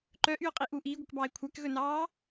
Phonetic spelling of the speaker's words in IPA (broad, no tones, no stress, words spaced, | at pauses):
ǃœʔyʊ̯qʼiʔu ʔiːɡʷœkbɑːɪ̯ kʷʰækɣɵnɑː